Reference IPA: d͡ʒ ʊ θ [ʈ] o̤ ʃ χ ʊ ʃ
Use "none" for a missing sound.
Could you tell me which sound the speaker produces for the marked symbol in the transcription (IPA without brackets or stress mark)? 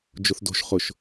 d